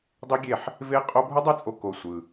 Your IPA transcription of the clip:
dˤi˦ɡʲe˦˨ħ | ve˦qʼo˦ bʱɯ˦dˤe˦t͡sʼo˧ ko˧ sʷɯ˧

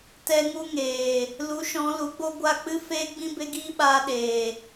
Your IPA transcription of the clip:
tɛ˧ ŋu˦ŋeː˨ | lu˨˦ʃɔ̃˨˦lu˨˦ɡ͡bo˦ ɡʷa˦˨k͡pɨ˦feː˦ɡ͡bĩ˦ be˦ɡiː˦ɓaː˧ ɗeː˨

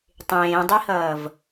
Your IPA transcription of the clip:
tˤẽːdˤihʌːv

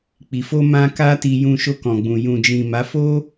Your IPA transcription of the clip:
k͡pi˨fo˧mã˧ ka˦ti˧jũ˧ ʃo˧kɔ̃˨ɡ͡bũ˨ jũ˨d͡ʒĩ˨ ma˨˦fo˦

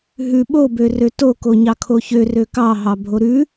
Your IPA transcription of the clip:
ɦʉ ɓobørø toko ɲɑkʰoçø røkɑɦɑ bʱoɾʉ

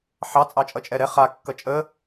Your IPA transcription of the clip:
ħɑ t͡sʼɑt͡ʃʼʌt͡ʃʼɛɾɛ χa kːʌt͡ʃʼə

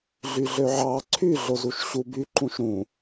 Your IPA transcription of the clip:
ɮyɮøʕɑ ǀʰyɮozuʃ ɕubyǃũʃ ɾũ

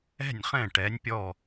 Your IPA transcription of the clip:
ɛ̤˥˩nʲχɛ̃˥˩ ʈɛ˩˥nʲpʲɔ˥˩

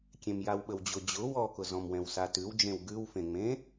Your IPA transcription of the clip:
kʲẽmjawɓəwd͡ʑʊ d͡ʑʊ wɔkʊ zɔ̃mwɛ̃wsatʉw d͡ʒẽwɡʉwfẽŋ͡mẽ

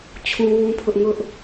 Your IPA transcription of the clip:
t͡ɕʰũ˦wũ˦pʰʊ˦ʔ ŋʊ˦ʔ

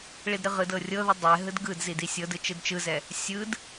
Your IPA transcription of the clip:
ɭidɾɯʁɯdɤ rʲɤðɯ dˤɛ ɦɯdɡɯdzid isʲɤdɯ t͡ʃɯdt͡ʃɯzɛ | sʲɯd

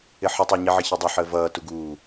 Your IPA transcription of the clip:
ɪħɪtˤæɲi ʕəçʌdˤʊ ħəːvʌː tuɡuː

